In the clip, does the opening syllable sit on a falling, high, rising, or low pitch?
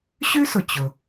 high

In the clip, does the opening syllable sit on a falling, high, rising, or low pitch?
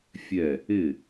falling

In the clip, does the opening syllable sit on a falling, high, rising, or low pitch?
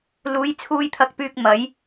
rising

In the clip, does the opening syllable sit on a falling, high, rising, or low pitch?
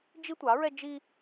high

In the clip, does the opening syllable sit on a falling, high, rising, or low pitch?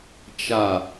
falling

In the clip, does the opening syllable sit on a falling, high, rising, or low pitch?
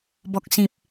low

